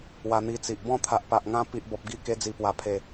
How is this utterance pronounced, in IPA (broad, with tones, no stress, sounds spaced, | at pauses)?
w a˧ n̪ i˧ t͡s i˨ ʔ b ɔ̃˥˧ t̪ʰ a˨ ʔ p a˨ ʔ ŋ ã˧ p i˨ ʔ b ɔ˨ p̚ ɡ i˧ k e˧ d͡z i˨˩ p w a˨˩ pʰ e˨˩